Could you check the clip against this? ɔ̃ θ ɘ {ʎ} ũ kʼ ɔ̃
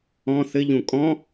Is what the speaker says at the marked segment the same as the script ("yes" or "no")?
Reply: yes